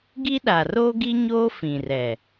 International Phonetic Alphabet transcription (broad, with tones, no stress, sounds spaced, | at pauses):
ɡ i˦ ɗ a˨ r oː˦ ɡ i˦ ɲ oː˦ f ĩ˨ r ɛ˨